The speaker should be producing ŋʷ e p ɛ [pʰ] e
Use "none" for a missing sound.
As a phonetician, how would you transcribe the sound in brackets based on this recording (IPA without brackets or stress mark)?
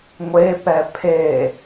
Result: pʰ